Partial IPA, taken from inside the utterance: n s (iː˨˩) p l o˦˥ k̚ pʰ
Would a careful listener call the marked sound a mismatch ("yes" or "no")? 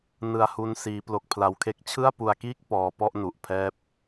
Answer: yes